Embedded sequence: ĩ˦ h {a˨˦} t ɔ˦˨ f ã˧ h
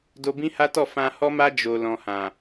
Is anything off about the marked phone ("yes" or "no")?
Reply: yes